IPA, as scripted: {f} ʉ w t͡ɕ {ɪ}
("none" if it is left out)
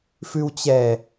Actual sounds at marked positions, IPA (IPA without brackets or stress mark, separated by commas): f, ɛ